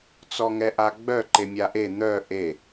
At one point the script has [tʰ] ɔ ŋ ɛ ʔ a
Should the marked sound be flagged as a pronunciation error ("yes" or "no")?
yes